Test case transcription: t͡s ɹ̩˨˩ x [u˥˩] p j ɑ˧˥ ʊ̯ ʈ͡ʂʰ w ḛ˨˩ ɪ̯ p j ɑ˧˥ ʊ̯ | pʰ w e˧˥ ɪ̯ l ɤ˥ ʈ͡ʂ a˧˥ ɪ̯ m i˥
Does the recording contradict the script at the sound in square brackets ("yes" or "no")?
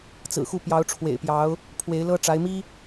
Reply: no